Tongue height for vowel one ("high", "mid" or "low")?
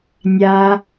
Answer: low